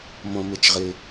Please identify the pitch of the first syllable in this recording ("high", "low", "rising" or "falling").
low